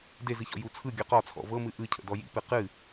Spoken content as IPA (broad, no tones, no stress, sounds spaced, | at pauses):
d e z ɨ ç ɔ̰ j u t͡sʰ ɯ ɡʲ ɔ q ɒ t͡sʰ ɔ̰ v ɤ m ɨ ʔ ɯ cʰ ə̰ d ɔ j ḭ p ɨ q ɨ